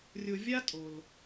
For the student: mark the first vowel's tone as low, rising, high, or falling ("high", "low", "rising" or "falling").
low